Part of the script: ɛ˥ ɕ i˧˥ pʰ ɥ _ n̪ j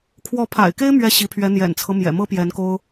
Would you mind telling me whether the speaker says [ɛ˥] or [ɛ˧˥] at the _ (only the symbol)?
ɛ˧˥